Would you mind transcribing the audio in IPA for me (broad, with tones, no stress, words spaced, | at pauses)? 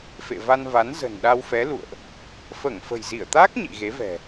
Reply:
fḛ˧˨va˧nva˨˦n zə̤˨˩nɗa˧wfɛ˨˦lṵ˧˨ə̯ʔ | fəː˧˩ŋfə̤˨˩jzi˧˩ə̯t̪aː˦˥k̚ ɲḭ˧˨ɣe˨˦vɛ̤˨˩